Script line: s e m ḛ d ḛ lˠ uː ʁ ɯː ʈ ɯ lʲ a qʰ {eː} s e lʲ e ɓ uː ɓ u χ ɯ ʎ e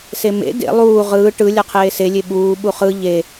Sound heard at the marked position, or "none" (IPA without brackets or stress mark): eː